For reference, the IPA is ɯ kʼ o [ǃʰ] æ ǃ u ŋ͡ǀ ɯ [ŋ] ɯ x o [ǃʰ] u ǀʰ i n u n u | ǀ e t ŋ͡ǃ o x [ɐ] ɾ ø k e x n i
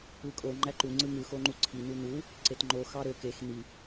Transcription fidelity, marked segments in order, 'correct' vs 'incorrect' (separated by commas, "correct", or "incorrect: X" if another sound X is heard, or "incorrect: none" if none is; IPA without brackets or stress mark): incorrect: ŋ͡ǃ, correct, incorrect: ŋ͡ǃ, incorrect: ɑ